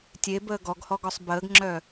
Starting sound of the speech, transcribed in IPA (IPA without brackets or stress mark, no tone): tʲ